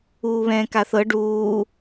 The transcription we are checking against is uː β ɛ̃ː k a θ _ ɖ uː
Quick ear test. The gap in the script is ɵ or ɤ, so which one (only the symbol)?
ɤ